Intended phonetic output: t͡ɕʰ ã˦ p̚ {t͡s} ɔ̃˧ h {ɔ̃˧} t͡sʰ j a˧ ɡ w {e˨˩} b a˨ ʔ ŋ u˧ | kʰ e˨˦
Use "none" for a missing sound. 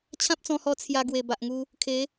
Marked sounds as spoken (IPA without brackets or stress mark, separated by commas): t͡s, ɔ˧, e˨˩